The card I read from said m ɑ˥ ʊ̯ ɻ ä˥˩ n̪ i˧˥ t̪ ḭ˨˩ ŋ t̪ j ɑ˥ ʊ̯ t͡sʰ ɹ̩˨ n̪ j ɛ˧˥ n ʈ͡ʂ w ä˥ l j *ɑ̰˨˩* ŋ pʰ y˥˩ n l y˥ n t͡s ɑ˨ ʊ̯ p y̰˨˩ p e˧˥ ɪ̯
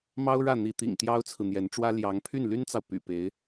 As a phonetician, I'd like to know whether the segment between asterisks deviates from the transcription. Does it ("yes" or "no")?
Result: yes